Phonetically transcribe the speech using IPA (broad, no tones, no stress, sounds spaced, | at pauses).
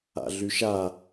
a̰ ɮ y ʃ a